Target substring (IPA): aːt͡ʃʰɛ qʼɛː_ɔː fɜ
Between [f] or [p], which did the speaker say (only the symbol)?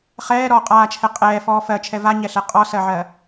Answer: f